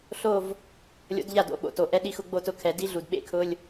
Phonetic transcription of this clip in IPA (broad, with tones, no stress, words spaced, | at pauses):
ɬo˥˧v | lʲo̰˧˥dʎa˥˩do̰˧˥˧ɓo̰˨ to˨ ʔɛ˥˧ɗi˧˥˧x ʊ˨˩˦ɡ͡bo˥˩tʊ˥˩ kʰɛ˨˩˦di˧˥ɮu˨d ɓḛ˥˧kʰʊ˧˥˧lʲ